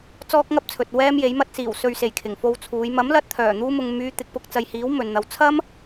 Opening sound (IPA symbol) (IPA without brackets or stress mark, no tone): t͡s